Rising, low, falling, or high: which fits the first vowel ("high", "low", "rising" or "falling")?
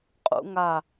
rising